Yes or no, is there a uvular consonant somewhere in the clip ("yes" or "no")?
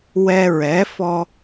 no